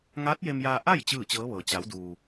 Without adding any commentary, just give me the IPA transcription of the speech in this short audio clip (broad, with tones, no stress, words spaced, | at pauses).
ŋaː˧˥t̚je˧mjaː˧ ʔa˥˨j t͡ɕɯː˥˨t͡ɕɤː˧˥ʋɤː˩ t͡ɕa˩˧wduː˩